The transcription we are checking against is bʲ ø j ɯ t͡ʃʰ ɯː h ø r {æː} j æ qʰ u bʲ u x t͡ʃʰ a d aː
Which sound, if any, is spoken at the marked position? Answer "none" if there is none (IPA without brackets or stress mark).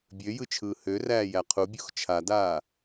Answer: æː